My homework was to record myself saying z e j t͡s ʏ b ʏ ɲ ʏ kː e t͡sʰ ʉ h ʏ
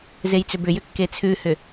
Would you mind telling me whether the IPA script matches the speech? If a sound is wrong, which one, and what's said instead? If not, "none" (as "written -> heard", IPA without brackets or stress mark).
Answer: ɲ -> j